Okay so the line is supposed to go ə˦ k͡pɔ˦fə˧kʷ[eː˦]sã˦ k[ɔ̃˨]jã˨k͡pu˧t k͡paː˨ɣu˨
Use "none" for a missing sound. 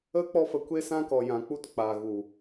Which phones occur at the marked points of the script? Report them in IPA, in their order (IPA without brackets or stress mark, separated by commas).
e˦, ɔ˨